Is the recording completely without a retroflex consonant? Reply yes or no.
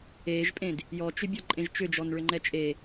no